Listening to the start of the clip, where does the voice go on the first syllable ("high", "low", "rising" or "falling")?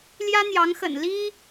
high